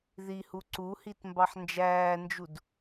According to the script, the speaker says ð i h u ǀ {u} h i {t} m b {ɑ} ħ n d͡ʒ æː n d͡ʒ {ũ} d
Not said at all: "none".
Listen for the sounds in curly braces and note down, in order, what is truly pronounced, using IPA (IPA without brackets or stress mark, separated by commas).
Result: u, t, ɑ, u